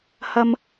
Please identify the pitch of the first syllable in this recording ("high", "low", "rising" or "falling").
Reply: high